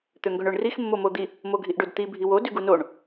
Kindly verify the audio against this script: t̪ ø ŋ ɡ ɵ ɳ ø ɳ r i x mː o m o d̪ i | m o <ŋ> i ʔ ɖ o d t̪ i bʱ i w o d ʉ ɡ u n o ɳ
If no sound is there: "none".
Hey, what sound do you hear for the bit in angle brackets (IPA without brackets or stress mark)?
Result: ɡʱ